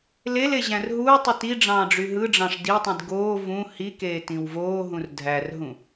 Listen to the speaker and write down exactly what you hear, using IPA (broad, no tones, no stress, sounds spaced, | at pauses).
l e l e ʑ æ̃ r ɦ uː tˤ ɯ t i ɖ͡ʐ ɑ̃ː ɖ͡ʐ y ɦ ɯ ɖ͡ʐ ɑ̃ ʂ d i tˤ ĩ d ɡ oː v ũ h i k eː t ĩ w v oː ɦ ũ r dʱ æ r ɦ ũ